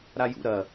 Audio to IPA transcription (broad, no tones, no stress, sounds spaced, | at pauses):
ɾ a j ṵ ɾ ɐ